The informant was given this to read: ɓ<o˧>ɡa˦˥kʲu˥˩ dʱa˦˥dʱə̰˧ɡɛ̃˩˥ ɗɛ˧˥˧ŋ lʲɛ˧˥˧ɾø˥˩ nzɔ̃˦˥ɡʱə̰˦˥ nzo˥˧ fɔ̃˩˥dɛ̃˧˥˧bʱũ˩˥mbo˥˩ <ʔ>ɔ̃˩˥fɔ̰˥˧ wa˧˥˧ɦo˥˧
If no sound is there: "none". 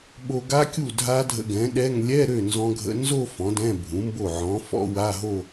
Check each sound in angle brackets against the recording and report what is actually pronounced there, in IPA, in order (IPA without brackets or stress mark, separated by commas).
o˧, ʕ